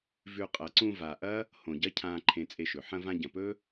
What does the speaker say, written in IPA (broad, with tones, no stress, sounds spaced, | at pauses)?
v ʉ˧ qʼ ɐ˨ ǀ ũ˧ v a˨ ʔ ɐ˦ | h õ˨ ɟ ɐ˦ cʰ ãː˧ ǃʰ ẽ˧ t͡sʼ e˧ ʃ ɵ˨ ħ ɐ̃˧ v ã˧ ɟ ɐ̃˨ p ɵ˦